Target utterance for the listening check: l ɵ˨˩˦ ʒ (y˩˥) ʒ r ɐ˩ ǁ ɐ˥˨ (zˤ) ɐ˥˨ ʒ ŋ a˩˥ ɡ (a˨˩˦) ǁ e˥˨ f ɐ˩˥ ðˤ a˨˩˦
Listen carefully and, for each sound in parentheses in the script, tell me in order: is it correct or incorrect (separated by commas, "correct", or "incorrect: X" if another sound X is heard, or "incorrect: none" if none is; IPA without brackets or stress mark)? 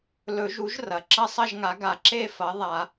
incorrect: u˩˥, incorrect: sˤ, correct